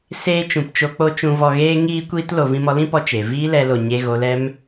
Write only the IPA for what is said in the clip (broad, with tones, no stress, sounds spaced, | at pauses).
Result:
s eː˧ t͡ʃ ũ˨ p t͡ʃ o˧ k͡p o˧ t͡ʃ ũ˨ v ɔ˨ ɣ eː˧ ŋ iː˧ kʷ iː˧ t l o˨ v ĩ˧ m ɔ˧ l ĩ˦ p ɔ˧ t͡ʃ e˨ v iː˦ l ɛ˧ l o˨ ɲ e˧ ɣ o˧ l ɛ˦ m